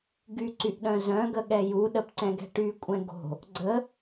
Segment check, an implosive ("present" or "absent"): present